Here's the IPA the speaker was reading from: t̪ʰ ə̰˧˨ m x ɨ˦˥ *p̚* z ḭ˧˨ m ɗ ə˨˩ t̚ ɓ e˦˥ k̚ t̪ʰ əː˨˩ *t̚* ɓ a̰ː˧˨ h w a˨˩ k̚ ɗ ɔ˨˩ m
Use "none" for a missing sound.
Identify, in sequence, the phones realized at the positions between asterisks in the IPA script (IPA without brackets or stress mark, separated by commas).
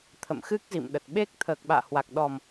k̚, k̚